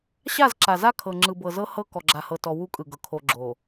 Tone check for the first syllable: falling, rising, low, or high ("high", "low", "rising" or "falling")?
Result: falling